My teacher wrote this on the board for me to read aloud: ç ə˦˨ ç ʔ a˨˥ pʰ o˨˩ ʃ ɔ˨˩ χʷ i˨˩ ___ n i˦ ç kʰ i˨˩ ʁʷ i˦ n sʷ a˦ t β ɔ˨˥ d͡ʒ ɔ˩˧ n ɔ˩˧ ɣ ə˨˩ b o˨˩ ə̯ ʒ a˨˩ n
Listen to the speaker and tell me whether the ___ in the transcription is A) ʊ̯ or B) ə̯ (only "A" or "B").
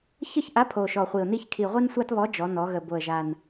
A